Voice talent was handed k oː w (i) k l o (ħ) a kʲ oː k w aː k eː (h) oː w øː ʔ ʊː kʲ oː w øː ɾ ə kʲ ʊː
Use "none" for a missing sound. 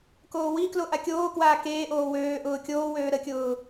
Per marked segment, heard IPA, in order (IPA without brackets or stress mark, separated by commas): i, ʔ, ʔ